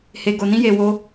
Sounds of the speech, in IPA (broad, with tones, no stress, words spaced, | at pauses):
he˧ɡo˧nĩ˦je˧ wo˦